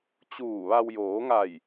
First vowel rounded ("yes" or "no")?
yes